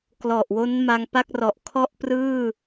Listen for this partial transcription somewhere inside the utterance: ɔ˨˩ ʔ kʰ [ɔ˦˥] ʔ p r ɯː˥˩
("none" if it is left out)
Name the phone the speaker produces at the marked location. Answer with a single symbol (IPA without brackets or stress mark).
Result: ɔ˥˩